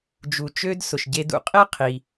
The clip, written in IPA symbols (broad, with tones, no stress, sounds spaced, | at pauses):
d͡ʒ u˩ t͡ʃ ø˧ d s ʊ˩ ʃ ɟ e˧ d ṵ˧ qʼ e˥ qʰ i˩